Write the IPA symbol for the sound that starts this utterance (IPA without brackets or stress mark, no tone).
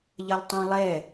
ʎ